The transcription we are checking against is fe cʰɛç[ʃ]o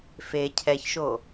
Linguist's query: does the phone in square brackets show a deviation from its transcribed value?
no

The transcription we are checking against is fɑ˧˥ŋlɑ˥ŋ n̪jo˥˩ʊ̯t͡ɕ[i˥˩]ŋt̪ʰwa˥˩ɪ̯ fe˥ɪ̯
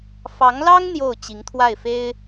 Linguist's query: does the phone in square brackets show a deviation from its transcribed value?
yes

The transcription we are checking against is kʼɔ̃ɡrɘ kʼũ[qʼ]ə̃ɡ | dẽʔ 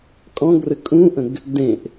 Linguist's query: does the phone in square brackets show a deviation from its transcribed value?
yes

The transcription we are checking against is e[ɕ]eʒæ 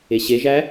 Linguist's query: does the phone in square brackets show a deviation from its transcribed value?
no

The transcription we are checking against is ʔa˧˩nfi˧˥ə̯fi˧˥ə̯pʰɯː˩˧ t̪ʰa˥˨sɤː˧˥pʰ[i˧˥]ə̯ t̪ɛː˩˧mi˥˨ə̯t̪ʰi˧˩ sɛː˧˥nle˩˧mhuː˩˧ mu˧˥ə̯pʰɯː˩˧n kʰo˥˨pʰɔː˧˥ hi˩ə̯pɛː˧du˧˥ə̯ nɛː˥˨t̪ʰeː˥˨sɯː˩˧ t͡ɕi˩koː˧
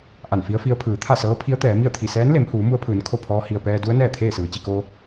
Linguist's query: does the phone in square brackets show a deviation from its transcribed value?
no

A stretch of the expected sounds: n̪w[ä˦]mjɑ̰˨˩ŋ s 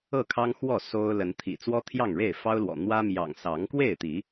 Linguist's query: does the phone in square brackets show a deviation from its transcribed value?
no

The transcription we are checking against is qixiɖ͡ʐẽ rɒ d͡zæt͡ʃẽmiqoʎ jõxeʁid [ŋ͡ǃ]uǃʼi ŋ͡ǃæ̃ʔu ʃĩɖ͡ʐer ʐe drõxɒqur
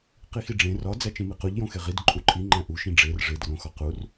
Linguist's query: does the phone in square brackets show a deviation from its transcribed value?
yes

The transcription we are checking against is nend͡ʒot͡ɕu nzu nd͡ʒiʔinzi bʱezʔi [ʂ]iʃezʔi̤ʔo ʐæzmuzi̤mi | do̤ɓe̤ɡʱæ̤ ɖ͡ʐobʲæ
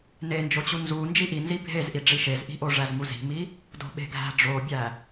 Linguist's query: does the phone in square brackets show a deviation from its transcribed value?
yes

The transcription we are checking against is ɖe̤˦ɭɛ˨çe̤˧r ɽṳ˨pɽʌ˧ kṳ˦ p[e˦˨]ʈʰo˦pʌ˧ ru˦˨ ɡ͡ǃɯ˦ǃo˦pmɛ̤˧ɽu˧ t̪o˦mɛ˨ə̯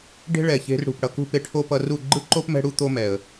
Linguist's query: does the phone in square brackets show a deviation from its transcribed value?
yes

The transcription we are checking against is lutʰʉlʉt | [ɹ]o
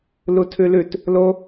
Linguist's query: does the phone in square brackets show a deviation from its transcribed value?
yes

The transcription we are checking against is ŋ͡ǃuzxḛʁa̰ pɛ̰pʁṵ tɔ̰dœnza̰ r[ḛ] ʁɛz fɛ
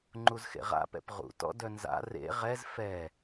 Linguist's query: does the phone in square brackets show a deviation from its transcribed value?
no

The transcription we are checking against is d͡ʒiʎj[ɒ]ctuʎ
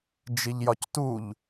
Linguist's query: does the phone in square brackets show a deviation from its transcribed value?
no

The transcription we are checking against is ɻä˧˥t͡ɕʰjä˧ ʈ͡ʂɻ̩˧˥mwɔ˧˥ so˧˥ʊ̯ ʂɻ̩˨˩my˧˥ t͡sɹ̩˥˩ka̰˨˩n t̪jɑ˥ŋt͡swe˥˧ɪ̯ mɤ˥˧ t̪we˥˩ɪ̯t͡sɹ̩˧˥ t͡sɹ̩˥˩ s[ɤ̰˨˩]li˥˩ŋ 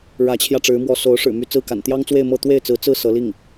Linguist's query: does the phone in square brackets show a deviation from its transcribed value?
yes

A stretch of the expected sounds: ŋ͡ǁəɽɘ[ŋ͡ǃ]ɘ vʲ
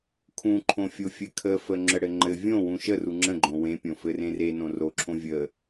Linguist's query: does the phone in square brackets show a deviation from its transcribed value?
no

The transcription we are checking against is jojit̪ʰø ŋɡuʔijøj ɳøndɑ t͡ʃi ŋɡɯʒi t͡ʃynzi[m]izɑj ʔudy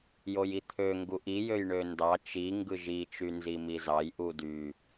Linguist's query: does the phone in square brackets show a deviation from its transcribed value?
no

